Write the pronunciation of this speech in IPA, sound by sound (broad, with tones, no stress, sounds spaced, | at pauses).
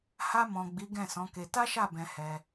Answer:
h a˧ m ɔ̃˨ ɡ͡b i˨˦ ɡ ɛ̃˦˨ s ɔ̃˨˦ k e˧ t a˦ ʃ a˦˨ b ɛ̃˧ h ɛ˧